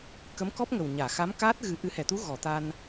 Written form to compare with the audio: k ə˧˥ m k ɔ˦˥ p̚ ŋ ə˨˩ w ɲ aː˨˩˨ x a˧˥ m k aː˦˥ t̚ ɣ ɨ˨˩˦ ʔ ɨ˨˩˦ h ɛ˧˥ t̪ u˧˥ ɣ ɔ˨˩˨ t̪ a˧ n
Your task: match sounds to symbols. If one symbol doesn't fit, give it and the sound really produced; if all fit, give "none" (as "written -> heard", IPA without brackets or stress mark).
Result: ɛ˧˥ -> ɛ˨˩˨